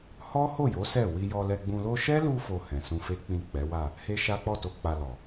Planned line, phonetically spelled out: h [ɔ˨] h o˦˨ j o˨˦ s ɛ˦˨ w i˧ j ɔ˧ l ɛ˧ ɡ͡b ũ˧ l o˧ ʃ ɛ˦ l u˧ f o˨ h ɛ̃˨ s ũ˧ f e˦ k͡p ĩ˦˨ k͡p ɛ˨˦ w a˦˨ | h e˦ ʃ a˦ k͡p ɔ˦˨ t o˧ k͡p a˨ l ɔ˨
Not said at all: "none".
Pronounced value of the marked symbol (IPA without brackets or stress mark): ɔ˦